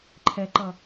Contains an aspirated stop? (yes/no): yes